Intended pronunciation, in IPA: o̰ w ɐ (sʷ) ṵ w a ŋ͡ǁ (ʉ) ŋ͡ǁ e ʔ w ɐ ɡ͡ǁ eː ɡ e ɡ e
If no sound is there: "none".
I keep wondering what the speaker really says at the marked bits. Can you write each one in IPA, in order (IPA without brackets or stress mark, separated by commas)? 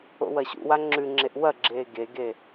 ɕ, ʉ